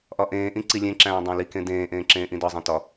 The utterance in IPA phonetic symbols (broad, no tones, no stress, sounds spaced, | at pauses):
ʔ ɒ ʔ ẽː ʔ ĩ ǀ i lʲ ẽ ǁ æ̃ː dˤ æ̃ l i k ẽ d ẽː ʔ ẽː ǁ ẽː ʔ ĩ d ɒ zˤ ĩ t ɒ